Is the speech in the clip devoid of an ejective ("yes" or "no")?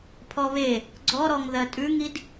no